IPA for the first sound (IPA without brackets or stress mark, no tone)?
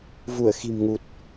v